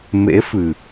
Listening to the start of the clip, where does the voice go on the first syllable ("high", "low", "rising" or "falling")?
rising